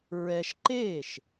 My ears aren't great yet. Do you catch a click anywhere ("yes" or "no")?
yes